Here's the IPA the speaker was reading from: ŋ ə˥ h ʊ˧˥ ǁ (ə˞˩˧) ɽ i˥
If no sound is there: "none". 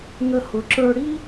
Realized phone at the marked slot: ə˞˥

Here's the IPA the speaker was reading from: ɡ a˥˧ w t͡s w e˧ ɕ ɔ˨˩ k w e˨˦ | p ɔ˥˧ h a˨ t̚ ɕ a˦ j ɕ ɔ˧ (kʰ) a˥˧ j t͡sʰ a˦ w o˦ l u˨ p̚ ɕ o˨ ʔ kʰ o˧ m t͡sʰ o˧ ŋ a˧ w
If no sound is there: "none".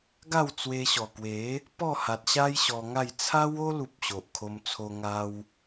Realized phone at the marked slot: ŋ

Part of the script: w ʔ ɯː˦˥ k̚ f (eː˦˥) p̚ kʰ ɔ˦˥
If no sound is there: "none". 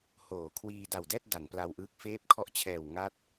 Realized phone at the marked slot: eː˦˥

